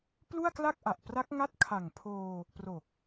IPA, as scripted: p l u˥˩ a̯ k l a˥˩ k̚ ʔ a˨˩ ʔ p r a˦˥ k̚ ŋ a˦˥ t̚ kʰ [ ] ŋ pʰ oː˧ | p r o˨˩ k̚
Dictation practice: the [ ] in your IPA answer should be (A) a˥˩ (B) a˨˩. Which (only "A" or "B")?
B